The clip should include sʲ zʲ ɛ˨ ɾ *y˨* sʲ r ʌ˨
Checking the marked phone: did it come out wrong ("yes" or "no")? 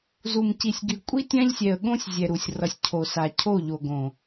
yes